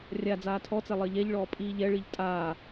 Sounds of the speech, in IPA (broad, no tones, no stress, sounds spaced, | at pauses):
rʲ a d͡z aː tʰ ɔ t͡s ɛ lˠ ɜ ʎ ɛ ʎ ɭ ɔː pʼ iː ʎ ɛ ɭ i ʎ tʼ aː